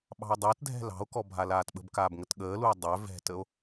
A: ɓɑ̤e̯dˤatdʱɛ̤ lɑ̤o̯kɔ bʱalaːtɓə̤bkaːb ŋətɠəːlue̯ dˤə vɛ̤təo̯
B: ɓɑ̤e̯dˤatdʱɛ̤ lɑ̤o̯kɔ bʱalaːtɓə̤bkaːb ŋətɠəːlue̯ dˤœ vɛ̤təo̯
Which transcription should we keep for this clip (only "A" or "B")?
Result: B